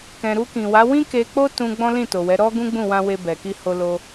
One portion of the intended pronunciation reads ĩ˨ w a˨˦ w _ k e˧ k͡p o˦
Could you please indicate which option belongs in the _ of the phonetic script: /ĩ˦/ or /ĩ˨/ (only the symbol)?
ĩ˦